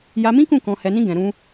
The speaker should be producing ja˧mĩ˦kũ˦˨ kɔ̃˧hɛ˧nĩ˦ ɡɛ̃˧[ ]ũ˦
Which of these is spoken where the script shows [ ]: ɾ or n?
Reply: ɾ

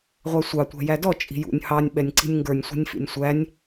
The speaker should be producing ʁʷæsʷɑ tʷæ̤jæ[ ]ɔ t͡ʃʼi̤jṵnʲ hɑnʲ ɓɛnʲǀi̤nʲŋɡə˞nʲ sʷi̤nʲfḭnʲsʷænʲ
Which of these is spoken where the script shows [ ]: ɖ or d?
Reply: d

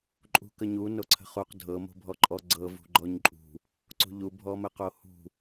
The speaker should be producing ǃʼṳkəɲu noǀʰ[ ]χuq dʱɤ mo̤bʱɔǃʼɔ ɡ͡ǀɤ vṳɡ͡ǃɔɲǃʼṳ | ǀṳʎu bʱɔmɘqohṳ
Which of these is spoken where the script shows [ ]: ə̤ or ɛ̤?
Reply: ə̤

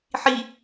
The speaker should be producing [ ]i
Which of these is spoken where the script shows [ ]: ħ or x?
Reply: ħ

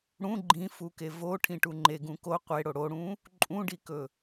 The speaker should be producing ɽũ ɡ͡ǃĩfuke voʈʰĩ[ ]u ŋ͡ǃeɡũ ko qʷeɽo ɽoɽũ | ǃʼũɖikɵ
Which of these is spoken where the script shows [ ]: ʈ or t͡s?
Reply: ʈ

